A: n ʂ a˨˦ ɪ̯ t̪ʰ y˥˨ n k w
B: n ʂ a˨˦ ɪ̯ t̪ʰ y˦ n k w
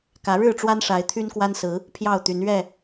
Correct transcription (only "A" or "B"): B